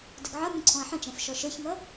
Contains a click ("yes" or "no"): yes